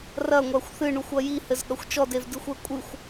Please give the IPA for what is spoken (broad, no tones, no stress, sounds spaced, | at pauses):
r ɐ ŋʷ a xʷ θ ɨ ɳ u xʷ ɐ j i h ɘ z ɠ ɐ xʷ t͡ʃ ɔ d e v d ɨ xʷ ɛ kʷʼ ɨ xʷ